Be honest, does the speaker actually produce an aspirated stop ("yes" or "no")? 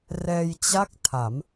yes